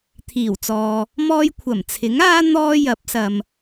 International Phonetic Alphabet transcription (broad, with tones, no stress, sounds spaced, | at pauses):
t̪ʰ iː˨˩ w t͡s ɔː˨ | m ɔː˧ j kʷʰ ɐ˨˩ m t͡sʰ ɪ˨˥ ŋ aː˥ n̪ ɔː˥ j ɐ˨˥ p̚ s ɐ˨ m